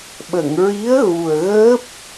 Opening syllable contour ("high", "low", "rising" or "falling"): low